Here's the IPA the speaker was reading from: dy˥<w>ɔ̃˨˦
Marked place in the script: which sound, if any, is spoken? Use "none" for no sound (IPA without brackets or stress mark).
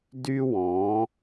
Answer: w